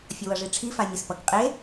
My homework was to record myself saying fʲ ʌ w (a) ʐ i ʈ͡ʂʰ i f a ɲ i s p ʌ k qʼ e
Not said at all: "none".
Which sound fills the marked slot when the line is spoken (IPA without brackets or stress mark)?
ʌ